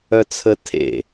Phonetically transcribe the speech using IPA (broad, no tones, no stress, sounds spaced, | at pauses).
œ t͡sʰ ə tʰ ḛ